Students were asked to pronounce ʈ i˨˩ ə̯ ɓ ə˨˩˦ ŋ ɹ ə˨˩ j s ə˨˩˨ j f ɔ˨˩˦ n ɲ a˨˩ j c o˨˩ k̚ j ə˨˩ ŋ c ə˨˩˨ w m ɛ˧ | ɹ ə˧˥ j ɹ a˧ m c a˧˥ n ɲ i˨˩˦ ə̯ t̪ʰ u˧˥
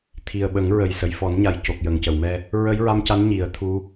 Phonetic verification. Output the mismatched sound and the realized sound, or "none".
ʈ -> t̪ʰ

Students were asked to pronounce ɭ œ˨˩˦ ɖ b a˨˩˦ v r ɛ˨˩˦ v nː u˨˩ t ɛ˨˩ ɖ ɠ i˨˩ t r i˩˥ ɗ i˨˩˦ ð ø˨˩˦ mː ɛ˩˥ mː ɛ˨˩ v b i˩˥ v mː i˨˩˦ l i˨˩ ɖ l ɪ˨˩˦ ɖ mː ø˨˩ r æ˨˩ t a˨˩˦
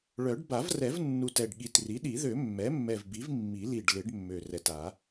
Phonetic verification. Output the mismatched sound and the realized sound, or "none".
æ˨˩ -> ɛ˨˩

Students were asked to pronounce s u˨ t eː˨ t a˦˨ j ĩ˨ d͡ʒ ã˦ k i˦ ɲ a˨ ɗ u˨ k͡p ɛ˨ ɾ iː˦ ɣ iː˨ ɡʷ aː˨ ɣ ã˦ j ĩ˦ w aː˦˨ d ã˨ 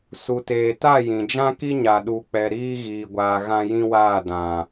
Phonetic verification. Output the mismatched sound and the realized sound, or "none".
none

